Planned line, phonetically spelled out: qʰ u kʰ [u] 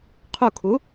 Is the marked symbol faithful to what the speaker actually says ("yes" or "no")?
yes